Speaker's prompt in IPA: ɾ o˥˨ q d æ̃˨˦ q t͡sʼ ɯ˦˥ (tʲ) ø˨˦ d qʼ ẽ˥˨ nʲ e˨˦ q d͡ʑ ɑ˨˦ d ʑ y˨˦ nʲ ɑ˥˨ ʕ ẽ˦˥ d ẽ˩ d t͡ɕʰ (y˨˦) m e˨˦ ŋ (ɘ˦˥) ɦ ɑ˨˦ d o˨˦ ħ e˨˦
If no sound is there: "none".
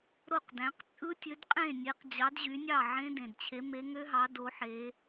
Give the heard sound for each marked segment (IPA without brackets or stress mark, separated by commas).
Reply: tʲ, e˨˦, ø˦˥